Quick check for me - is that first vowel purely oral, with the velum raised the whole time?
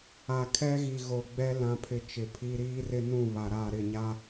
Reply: yes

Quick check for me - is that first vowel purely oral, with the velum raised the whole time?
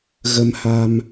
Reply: yes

